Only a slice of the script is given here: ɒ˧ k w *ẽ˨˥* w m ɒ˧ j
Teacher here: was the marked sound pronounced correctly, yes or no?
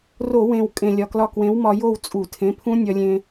yes